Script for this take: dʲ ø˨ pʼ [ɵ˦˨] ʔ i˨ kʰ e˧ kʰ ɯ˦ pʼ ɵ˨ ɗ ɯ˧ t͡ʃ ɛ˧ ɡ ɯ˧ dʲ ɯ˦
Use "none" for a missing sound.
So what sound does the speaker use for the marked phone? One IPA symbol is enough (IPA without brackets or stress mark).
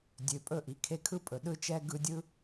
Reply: ɵ˦˨